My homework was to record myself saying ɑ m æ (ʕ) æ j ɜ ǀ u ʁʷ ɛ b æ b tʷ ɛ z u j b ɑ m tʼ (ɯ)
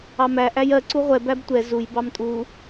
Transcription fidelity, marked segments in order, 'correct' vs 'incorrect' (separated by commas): incorrect, incorrect